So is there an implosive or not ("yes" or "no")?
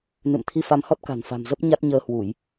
no